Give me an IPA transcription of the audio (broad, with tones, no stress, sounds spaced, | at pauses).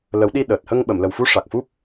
l ə˨˩˦ w ɗ i˧ ɗ əː˨˩ t̚ h ə˧ ŋ ɓ ə˨˩˨ m l ə˨˩ w f u˧˥ ʂ a˨˩ k̚ f u˦˥ p̚